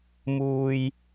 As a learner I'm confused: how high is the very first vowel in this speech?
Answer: high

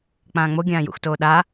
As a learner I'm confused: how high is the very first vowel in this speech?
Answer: low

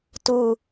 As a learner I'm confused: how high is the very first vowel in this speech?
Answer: high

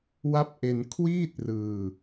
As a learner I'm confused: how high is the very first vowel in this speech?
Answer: low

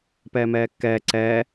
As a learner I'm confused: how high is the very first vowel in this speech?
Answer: mid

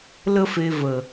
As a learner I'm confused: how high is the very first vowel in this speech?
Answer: mid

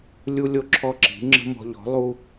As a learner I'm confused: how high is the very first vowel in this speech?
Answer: high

